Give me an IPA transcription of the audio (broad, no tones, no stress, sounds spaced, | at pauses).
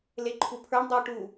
l e ǃʰ u pʰ ə˞ ɳ dˤ i ʈ u